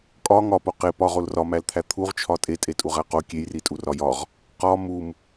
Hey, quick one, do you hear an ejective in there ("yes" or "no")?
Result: yes